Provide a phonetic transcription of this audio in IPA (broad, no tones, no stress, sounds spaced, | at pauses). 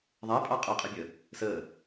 ðˤ æ pʼ ɑ qʼ ʌ qʼ ɪ bʲ ə | s ə